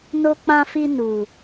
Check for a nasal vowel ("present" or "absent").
present